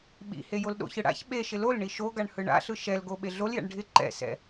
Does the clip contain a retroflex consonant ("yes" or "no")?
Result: yes